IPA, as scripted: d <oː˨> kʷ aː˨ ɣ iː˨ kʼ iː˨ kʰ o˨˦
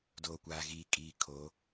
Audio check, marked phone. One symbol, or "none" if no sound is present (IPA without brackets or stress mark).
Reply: oː˨